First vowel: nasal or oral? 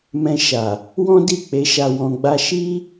nasal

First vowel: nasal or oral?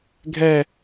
oral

